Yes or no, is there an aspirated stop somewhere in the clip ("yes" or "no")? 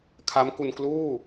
yes